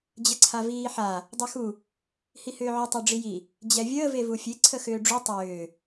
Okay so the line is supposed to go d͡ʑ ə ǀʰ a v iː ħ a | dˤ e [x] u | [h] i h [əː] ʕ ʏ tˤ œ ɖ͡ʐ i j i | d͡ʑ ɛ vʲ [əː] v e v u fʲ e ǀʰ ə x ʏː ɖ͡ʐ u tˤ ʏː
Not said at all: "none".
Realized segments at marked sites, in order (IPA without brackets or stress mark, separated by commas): x, h, ʏː, əː